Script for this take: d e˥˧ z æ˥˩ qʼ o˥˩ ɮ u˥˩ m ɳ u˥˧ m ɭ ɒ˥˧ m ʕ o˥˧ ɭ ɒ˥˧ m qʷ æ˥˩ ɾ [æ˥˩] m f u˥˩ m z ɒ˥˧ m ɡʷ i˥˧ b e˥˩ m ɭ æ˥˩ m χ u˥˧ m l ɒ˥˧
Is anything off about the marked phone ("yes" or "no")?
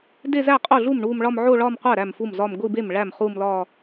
no